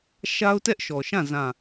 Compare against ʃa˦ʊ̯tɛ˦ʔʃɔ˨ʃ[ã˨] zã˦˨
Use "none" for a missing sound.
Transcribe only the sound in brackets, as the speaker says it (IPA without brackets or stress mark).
ã˦˨